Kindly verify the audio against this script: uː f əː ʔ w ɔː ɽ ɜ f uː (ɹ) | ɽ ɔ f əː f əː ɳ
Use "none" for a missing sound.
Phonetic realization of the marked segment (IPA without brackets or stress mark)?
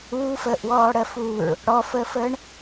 ɹ